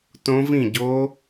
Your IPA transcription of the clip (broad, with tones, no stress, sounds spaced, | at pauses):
t õ˦˥ v ĩ˥˨ ɟ o˦˥